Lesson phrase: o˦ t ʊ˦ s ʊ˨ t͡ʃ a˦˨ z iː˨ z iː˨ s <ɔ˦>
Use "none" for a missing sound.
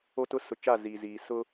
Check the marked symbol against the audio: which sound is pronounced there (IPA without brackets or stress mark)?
ʊ˦